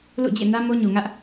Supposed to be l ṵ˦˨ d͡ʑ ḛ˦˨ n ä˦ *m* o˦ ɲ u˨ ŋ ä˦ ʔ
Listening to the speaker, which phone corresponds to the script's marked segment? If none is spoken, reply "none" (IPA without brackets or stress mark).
m